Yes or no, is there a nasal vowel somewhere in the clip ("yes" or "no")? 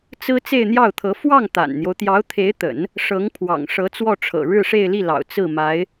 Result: no